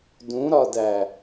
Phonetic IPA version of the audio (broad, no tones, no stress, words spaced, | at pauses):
dũɾɒdæ